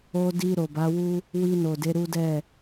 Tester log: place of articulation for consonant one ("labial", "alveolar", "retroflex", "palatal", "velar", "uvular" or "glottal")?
alveolar